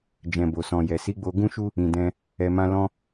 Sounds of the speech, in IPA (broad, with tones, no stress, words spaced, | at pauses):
d͡ʒɛ̃˨bo˨sɔ̃˨jɛ˨ si˨˦ɡ͡bo˧ɡũ˦ʃu˦ | ĩ˨dɛ̃˧ | ɛ˨mã˧ lɔ̃˦